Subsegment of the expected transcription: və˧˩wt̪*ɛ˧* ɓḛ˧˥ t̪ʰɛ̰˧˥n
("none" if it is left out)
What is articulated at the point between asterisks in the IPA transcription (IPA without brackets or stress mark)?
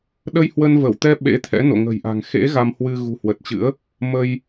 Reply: ɛ˧